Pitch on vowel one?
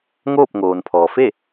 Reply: falling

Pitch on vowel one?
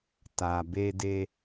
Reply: low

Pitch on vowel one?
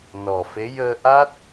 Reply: low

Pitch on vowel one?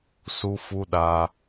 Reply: high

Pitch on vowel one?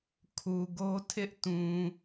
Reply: low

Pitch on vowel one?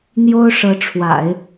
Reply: high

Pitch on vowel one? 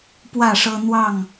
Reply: falling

